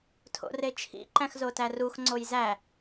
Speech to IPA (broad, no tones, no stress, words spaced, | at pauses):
tʰo̰ret͡ʃʰḭ ǃæ̃xzotærux ŋ͡ǀojzæ